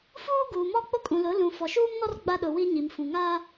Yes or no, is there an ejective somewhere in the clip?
yes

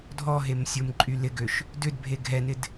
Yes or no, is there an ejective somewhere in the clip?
yes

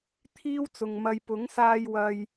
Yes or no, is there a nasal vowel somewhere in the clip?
no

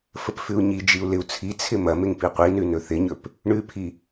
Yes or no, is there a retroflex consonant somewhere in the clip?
yes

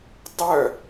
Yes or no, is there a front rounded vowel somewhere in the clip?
yes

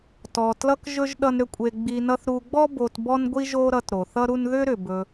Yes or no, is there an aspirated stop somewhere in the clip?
no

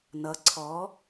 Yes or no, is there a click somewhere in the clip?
yes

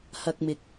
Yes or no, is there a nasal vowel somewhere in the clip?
no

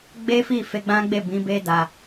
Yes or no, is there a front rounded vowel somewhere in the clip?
no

